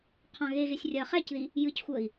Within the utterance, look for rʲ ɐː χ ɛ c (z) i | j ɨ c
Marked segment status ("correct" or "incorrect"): incorrect